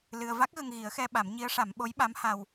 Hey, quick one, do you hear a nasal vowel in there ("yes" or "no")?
no